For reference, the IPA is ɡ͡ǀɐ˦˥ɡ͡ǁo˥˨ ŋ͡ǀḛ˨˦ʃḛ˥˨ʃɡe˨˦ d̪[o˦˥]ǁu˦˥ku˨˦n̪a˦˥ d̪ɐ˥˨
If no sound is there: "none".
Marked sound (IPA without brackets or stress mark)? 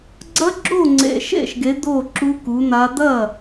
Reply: o˥˨